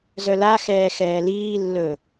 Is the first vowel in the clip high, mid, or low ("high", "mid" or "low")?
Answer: mid